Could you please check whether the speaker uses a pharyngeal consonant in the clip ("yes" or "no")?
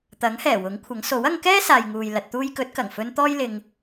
no